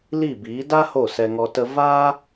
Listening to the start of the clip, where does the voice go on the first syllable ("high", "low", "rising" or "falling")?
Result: falling